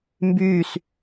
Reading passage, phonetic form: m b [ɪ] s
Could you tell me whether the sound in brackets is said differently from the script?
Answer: yes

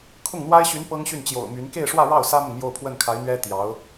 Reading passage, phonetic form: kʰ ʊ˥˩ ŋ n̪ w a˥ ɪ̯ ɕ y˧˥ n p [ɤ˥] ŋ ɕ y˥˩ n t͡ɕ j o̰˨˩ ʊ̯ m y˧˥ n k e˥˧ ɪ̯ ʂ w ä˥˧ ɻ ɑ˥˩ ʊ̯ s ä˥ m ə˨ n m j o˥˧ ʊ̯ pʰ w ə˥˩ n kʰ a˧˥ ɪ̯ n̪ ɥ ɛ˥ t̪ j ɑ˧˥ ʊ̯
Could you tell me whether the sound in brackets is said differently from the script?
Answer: no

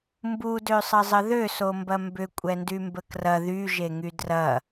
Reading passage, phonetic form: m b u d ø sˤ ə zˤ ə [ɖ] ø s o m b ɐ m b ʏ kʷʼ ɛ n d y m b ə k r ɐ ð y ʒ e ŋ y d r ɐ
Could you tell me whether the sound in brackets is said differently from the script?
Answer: yes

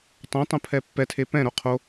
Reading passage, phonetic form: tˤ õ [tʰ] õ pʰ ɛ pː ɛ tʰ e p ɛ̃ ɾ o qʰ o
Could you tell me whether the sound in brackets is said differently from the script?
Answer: yes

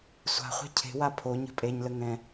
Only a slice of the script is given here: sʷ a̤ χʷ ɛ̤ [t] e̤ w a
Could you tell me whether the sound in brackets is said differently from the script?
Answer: yes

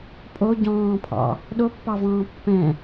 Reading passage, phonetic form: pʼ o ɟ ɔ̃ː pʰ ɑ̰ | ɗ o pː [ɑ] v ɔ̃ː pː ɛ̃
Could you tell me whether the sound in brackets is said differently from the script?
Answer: no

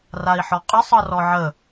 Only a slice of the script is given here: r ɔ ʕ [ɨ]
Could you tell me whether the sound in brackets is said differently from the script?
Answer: yes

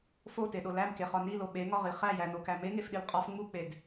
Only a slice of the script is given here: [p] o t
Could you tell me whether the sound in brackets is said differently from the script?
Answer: yes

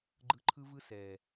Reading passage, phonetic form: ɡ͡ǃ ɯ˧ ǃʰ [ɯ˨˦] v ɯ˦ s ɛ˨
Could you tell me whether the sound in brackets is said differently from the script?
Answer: yes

